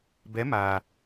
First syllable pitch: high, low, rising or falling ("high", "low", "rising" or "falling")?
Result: rising